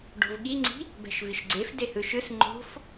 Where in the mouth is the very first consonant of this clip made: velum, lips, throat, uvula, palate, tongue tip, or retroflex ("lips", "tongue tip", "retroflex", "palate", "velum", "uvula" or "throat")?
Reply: retroflex